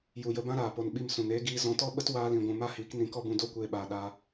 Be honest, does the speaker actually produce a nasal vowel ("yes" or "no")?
yes